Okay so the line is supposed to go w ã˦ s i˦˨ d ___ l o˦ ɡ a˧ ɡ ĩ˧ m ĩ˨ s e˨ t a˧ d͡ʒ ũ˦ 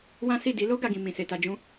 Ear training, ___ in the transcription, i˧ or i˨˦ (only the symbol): i˨˦